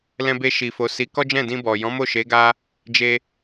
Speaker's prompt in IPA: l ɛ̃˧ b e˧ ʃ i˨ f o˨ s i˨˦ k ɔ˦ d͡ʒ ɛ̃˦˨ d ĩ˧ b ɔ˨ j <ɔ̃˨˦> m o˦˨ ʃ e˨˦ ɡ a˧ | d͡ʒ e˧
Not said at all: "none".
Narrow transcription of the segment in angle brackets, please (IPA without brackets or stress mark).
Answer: ɔ̃˨˦